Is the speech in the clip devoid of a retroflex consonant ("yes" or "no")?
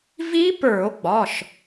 yes